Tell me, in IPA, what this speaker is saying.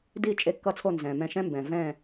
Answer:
di˧˩ t͡ʃʼe˧˩kːʌ˧˩t͡sʰo˧˩ nzɛ̃˩mɛ̃˧˩ʃɛ̃˦mbɛ̃˩ vɛ̃˧˩

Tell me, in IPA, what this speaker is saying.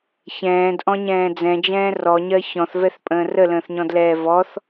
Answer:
çɛ̃ːdʔɔ̃ɲɛ̃ː d͡zɛ̃d͡ʒɛ̃ː rɔɲɜ çɔ̃θvɛθpʼə̃ː rələ̃ːθɲɔ̃dlɛː vɔθ

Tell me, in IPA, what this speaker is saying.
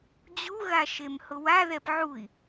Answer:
d͡ʑuɣaʃemhʊ waðɛp ʕui̯

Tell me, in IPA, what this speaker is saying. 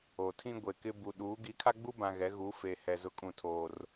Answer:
o˨tʰĩ˦ ɡʷe˨kɪ˦ bu˨ɗuː˨˦ ɡi˨˦kʰa˦ɡ͡bu˦bã˨ ɣɛ˨˦ɣu˨˦ fe˨hɛ˨ zʊ˦kʼũ˦˨tʰoː˦r

